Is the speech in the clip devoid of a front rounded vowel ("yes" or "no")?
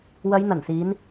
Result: yes